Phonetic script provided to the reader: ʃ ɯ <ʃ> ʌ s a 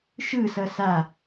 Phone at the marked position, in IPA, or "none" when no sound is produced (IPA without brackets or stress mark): s